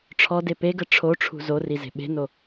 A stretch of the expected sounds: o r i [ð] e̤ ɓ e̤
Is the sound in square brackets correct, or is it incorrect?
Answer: incorrect: z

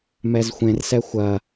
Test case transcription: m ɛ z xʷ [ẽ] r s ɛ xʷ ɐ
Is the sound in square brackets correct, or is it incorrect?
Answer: correct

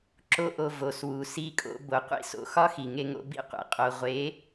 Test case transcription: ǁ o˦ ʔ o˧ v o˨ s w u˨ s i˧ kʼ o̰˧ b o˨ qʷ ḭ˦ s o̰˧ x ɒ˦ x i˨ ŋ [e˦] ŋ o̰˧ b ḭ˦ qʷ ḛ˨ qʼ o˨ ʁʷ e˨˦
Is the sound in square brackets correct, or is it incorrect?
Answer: incorrect: e˧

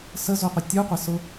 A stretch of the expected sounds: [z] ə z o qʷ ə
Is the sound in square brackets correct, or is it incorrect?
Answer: incorrect: s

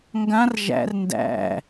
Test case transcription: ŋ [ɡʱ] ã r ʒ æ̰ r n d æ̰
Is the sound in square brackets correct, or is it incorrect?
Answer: incorrect: ɡ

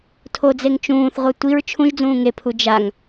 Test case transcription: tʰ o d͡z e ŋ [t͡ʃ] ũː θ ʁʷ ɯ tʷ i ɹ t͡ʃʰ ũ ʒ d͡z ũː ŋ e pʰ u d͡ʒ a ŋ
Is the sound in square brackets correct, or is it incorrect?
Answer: correct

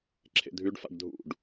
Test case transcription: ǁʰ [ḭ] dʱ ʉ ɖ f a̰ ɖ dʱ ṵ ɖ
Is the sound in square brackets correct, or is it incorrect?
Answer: incorrect: ḛ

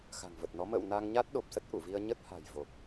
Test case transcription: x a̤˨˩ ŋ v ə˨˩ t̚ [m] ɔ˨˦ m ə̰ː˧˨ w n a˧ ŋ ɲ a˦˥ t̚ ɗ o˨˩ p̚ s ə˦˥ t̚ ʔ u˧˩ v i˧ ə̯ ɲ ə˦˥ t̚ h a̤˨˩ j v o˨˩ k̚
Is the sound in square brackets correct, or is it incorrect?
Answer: incorrect: n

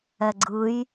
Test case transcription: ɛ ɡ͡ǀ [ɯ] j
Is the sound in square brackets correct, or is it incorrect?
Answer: correct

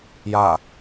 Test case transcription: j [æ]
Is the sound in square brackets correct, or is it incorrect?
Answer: incorrect: a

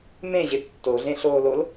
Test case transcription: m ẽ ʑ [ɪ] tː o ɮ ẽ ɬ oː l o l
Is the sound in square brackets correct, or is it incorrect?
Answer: correct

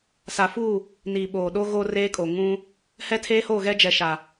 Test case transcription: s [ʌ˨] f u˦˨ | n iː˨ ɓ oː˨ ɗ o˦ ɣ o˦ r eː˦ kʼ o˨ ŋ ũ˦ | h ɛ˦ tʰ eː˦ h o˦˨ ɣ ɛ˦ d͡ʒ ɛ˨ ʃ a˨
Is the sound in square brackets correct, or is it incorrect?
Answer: incorrect: a˨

